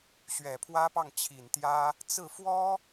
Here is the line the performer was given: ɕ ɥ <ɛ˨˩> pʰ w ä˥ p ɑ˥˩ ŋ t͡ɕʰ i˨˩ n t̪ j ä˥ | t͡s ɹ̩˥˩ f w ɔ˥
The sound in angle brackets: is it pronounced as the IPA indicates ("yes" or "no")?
yes